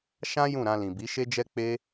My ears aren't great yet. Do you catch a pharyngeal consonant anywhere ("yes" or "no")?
no